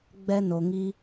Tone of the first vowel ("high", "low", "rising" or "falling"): high